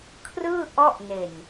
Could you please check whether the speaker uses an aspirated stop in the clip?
yes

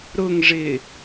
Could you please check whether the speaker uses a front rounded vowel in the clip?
no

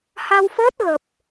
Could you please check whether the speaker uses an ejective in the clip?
no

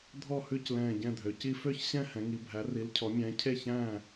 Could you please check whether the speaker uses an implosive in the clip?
no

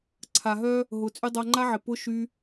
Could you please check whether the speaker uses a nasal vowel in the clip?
no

